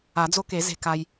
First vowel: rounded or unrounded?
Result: unrounded